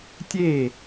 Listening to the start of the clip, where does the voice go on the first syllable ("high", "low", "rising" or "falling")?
falling